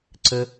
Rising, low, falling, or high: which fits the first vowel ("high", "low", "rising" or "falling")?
high